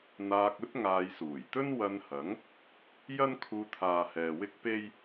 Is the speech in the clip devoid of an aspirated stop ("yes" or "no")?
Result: no